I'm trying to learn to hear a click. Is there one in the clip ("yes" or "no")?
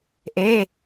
no